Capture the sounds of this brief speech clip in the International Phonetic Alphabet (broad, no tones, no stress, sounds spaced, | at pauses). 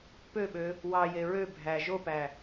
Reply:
p ø ɓ ø | w ɑ j e ɹ ø bʱ æ ʒ o p æ